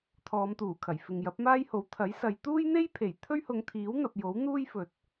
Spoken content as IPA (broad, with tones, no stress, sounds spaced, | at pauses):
t̪ʰ ɔː˨˧ m t̪ uː˨˩ kʰ ɐ˨˩ j f ɪ˨ ŋ j ɐ˨˥ p̚ m aː˥ j h o˨˥ w t̪ʰ ɐ˨˥ j s ɐ˨˧ j t̪ uː˥ j n̪ e˥ j pʰ e˨˩ j t̪ʰ ɵ˥ ɥ h ʊ˨˧ ŋ t̪ʰ iː˨˥ w n̪ ɐ˨ p̚ j o˨˥ w n̪ uː˥ j f ɵ˨ t̚